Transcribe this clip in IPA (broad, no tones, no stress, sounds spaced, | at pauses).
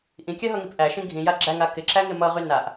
ʔ ĩ kʲ a ɦ ʌ ŋ i p ʔ æ ʃ ĩ ɡʱ ĩ j a ɡ͡ǁ æ ŋ a k ɪ ǁ æ ŋ ɪ m ʌ ʁ y n a ʔ